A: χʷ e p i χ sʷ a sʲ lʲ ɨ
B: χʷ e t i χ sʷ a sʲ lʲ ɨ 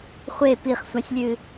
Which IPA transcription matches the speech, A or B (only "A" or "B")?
A